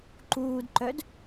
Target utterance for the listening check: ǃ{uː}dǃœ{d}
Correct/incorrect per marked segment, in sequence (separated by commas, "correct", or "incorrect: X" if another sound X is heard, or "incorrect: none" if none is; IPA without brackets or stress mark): correct, correct